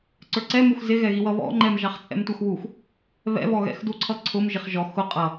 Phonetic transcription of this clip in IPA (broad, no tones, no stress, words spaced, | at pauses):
ǀə˞ǀɛmux zɪɣɛɣiwʌ βɔ̰ŋ͡ǃɛm ʒɑχt͡sʼɛ̰mtʷɑxwux | βɛ̰βɔɣɛ̰x duǀʰʌǀʰʊm ʒɪχʒɔ xʊ qʼʌ